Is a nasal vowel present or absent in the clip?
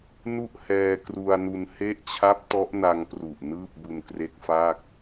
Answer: absent